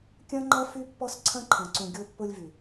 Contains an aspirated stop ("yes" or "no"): yes